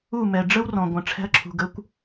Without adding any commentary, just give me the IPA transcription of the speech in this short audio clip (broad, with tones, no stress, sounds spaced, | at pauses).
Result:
u˥˩ m ɛ˩ ɖ͡ʐ ə˥ w r ɔ̃˩ ɡʷ ə̃˩ ʈ͡ʂʰ ɛ̤˧ ɐ̯ ǁʰ ṳ˩ ɡ ə˩˥ kʷ